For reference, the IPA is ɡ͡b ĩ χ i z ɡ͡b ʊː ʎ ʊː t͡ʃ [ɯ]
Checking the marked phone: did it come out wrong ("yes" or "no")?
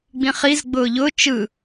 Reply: no